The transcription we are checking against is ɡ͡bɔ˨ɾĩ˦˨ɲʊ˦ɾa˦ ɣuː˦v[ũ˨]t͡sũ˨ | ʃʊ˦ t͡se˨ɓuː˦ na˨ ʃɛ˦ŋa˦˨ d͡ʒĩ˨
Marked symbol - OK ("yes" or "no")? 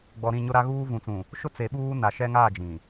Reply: yes